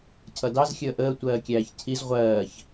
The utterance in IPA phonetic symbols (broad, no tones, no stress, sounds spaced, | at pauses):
cʰ ʌ d ɑ z xʲ əː ʔ əː tʷ ɜː kʲ æː ç cʰ i z ʁʷ ɜː ç